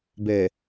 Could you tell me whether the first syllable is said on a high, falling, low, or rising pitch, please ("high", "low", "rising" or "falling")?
low